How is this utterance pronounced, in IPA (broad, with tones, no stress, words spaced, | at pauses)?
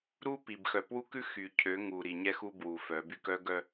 ɾu˦pi˨bxœ˨ pwu˦kʉ˦ xy˨ cʰø˨˦ŋu˨ɾi˨ ɲɛ˦xu˦ bwu˨fœ˨˦by˦k œ˦ɡœ˦